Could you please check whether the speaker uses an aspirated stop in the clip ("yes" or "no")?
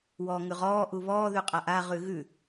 no